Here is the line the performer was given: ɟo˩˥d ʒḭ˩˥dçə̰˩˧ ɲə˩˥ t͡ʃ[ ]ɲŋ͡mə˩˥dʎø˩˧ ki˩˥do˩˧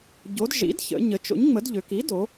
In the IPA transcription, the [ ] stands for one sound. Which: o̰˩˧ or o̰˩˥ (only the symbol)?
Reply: o̰˩˥